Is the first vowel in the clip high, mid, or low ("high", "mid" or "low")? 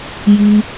high